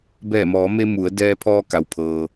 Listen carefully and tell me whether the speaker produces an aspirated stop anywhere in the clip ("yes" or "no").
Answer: yes